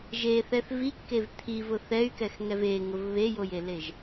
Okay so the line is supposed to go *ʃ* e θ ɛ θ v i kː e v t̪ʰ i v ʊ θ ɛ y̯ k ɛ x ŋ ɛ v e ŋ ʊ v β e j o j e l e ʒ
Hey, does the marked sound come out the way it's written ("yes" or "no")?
no